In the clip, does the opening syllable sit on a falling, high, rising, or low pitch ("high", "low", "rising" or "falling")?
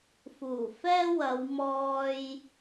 low